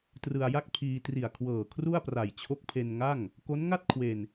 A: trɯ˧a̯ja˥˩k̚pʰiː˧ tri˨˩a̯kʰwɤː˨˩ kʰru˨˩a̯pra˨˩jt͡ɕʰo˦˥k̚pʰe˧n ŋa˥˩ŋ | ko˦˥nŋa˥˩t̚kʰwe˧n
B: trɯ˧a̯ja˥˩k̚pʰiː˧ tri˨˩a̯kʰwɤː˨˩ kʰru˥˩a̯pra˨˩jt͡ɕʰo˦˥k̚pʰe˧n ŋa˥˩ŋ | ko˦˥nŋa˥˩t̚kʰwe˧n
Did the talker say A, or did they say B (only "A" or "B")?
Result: B